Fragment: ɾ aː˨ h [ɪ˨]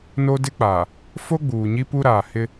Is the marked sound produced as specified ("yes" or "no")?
no